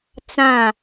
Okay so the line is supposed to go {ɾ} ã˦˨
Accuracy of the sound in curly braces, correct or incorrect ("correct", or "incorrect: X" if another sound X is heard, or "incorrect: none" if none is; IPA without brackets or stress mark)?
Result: incorrect: t͡s